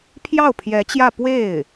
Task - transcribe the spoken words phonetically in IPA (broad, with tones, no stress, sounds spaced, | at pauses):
pʰ j ɑ˥˩ ʊ̯ pʰ j ɛ˧˥ t͡ɕ j ä˥˧ p w e˥˩ ɪ̯